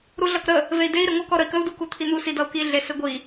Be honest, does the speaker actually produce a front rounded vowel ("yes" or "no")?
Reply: no